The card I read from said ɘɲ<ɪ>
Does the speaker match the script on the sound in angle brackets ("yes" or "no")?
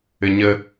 no